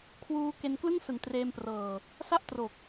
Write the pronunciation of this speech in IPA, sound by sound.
kʰ w uː˧ k e˧ n k l ɯ˥˩ ŋ s ɯ˨˩ ŋ t r eː˧ m p r ɤː˨˩ | s a˥˩ ʔ t r o˨˩ k̚

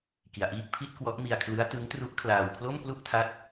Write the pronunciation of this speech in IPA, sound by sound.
k i˧ a̯ ʔ iː˥˩ k̚ pʰ i˥˩ t̚ k w ɔ˦˥ ʔ m i˧ a̯ kʰ l ɯ˦˥ a̯ t ɯ˦˥ ŋ t r u˦˥ ʔ kʰ l aː˧ w kʰ l o˥˩ m p l u˥˩ ʔ tʰ a˦˥ t̚

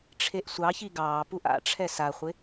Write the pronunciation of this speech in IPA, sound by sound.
ʈ͡ʂʰ e ʔ sʷ ɑ ç i ɡ ɑː p u ʔ a̰ ʈ͡ʂʰ ɛ s a χʷ ɪ

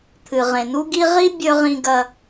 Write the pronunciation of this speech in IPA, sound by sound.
t̪ʰ ɨ˩ ʁ ẽ˩ n u˦ ɡ i˦ ʁ i˥ bʲ ɵ˥ ʁ ĩ˦ ɡ ɐ˦

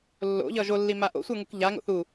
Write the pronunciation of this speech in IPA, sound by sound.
lː o̰ ʎ ʌ ʒ o lː i m a ʔ o̰ sʷ ə˞ ŋ u k ʎ a ŋ o̰ θ u

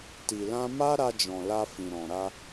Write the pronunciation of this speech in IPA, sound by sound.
t i˨ l ã˧ m a˦ ɾ a˧ d͡ʒ ɔ̃˨ l a˧ f ĩ˨ ɾ ɔ̃˨ ɾ a˧

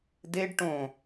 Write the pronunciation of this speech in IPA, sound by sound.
d e ɖ ʈ õ

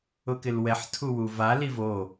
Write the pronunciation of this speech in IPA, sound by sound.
ʊ k ɪ l w ɛ ħ tʰ u w u v a l i v o

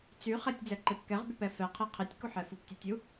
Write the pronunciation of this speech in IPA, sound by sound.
t͡s y χ ɛ tʲ d͡z ɛ ǃ e p k ɛ ʁ b y p ɛ f ɛ qʰ e qʰ e tʲ k u ħ ɛ f u p tʲ u tʲ u

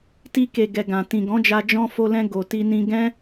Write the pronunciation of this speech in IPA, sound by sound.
t i˧ k e˨ ɡ ɛ˨ ɡ ã˨ t ĩ˨ ɡ ɔ̃˨˦ d͡ʒ a˧ d͡ʒ ɔ̃˧ f o˧ l ɛ̃˧ ɡ o˨ t i˧ n ĩ˧ ɡ ɛ̃˦

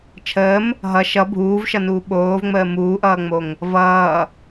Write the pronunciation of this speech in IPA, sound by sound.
t͡ʃʰ əː m | ɦ ʌ ʃ ʌ bʱ uː v ʃ ʌ n uː ɓ oː v ŋ͡m əː m uː ʔ ʌː ŋ͡m o ŋ | v ʌː

